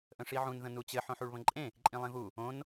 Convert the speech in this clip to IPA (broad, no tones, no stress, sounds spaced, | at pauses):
ʔ ə̃ ʂ i ʕ ũ n ð ə̃ n u t͡ɕ ɘ ħ õ ħ u ɭ β ə̃ ǃʼ ẽ | ǃʼ ĩ lˠ ẽ v u | õ n